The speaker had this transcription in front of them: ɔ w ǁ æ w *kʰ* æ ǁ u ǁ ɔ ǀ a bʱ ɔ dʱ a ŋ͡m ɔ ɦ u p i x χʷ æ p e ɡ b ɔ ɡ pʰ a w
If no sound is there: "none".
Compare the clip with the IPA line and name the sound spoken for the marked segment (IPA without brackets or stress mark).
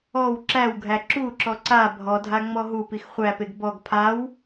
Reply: ɡʱ